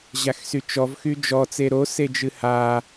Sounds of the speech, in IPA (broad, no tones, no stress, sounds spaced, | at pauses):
ʑ a x s y t͡ʃ ɔ v x y d͡ʒ ɔ t͡s e ɾ o s e d͡ʒ ɨ h a